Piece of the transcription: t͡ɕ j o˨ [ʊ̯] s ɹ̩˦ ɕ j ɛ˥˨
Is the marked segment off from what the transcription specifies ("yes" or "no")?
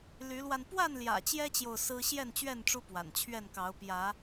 no